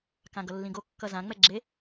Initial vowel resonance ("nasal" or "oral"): nasal